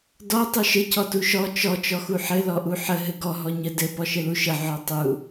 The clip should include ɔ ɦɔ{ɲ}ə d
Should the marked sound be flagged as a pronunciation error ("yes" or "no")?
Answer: no